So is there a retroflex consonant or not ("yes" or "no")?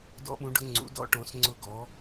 yes